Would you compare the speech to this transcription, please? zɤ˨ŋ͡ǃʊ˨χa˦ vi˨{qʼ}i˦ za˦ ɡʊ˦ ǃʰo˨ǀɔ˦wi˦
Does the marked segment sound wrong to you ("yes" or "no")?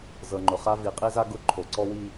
no